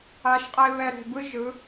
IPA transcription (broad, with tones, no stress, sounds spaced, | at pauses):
a˨˦ ʃ qʼ e˧ β ɛ˧ ɾ e̤˨ b ɯ˦ ʒ ɯ˨˦